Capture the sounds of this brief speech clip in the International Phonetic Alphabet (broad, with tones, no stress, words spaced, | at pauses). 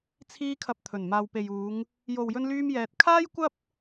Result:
t͡sʰiː˧kʰɐ˨p̚ t̪ʰɵ˨˩nmaː˨wpe˨juː˨˧ŋ | jo˨wjɵ˧nlyː˧m jɛː˧t̚ kʰaː˥jkʷɐ˥p̚